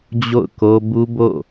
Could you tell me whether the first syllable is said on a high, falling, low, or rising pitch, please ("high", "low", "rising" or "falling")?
falling